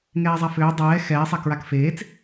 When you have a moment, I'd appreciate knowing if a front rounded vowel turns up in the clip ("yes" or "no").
yes